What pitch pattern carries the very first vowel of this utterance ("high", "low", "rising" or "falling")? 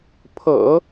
low